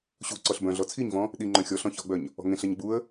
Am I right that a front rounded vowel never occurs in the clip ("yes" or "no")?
no